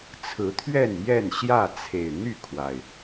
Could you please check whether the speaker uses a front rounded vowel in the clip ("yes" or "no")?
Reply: yes